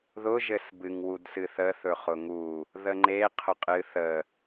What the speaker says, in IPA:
ð ʊ ʒ ɘ s b ɨ ŋ w u d s ɨ θ ə θ ɵ χ ʊ ŋ u | ð ə ŋ͡ǃ e qʰ ʊ qʼ ɨ θ ə

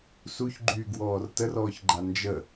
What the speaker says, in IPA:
s u ç ɡ͡ǃ yː ɡ w ɔː r t ə r ɔː ç ɡ͡ǃ a n d͡ʒ ə

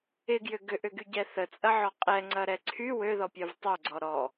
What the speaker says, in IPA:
ɪ ɡ j ʏ ɡ ʏ ʔ ʏ ɡ y ɟ ɛ θ ə t͡sʼ ɐ ʕ ɔ qʼ ɛ ŋ͡ǀ ɐ ɾ ɛ ǀʰ y w ø ð ɔ pʲ œ v tˤ œ ɡ͡ǀ ɔ ɾ ɔ

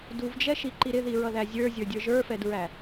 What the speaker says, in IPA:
d u v d͡ʒ ɛ ʃ i ǃ i ɾ ɪ ð i ɹ ʌ ð æ zʲ ə˞ zʲ ə˞ dʲ ə˞ ʒ ə˞ f ɛ d ɹ æ

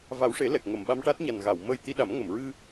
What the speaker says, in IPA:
v a˨˩˦ w ʂ e˨˩˦ l ɛ˨˩ k̚ ŋ ə˨˩˨ m ɓ a˧ m ʈ a˦˥ t̚ ɲ a˨˩ n ɣ a˨˩˨ w m əː˧ j t̪ i˧ ɗ a˨˩˦ m ŋ ə˨˩˨ m ɹ ɨ˧

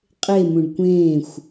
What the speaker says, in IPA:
qʼ e m ũ ɖ kʷ ẽː xʷ

